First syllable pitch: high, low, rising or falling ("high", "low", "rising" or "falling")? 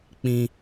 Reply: high